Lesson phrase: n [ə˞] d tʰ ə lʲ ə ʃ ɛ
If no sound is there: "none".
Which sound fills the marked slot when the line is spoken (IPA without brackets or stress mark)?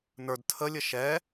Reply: ə˞